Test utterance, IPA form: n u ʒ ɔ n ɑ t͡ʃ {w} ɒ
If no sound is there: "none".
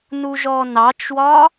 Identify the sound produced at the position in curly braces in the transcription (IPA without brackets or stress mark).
w